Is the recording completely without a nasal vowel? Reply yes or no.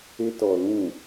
no